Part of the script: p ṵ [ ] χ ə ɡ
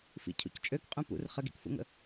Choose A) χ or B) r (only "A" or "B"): B